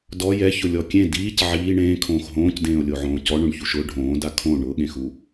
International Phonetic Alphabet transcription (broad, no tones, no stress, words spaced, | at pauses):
dɔ jɛçʊlʲɔ kʲẽ diːc ʕiː ɳẽːkʰõːx ɦõːcdẽːo̯lʲoʕõː cɔɳõɳçuʃ ʊ ɖʱõːda kʰõ ɳʊɠẽxu